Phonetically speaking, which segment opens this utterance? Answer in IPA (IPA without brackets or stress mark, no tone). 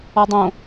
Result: ɔ